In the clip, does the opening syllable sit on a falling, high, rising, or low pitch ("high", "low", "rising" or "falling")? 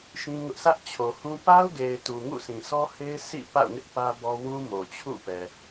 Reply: high